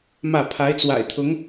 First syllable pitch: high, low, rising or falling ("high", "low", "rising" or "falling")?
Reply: falling